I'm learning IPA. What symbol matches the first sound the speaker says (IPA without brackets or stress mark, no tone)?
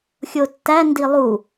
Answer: xʲ